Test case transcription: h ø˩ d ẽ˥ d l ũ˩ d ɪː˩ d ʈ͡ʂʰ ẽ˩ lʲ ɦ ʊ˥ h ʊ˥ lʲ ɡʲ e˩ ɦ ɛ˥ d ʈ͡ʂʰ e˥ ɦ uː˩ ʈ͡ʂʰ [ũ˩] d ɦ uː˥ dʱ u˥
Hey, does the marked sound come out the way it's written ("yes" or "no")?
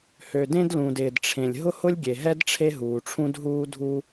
no